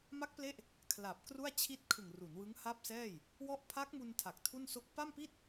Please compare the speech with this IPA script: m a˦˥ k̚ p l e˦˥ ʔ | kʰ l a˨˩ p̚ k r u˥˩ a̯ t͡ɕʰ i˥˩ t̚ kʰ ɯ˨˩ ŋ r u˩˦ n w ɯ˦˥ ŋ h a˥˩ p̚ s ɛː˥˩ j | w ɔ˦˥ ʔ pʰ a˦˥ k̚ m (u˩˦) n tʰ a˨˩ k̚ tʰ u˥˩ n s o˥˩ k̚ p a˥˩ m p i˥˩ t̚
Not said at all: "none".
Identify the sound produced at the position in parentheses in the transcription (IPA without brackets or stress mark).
u˧